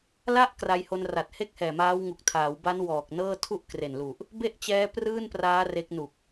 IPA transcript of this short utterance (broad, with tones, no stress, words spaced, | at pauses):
la˥˩ʔkra˧jho˧nra˨˩t̚ he˥˩k̚hɛː˨˩maː˦˥wŋu˨˩k̚ tʰaː˩˦wba˦˥n wɔː˨˩k̚nɤː˥˩ tʰu˥˩ʔkre˨˩nlu˨˩ʔ | be˥˩ʔt͡ɕɛː˦˥ prɯː˥˩npraː˦˥ re˦˥k̚ nu˨˩k̚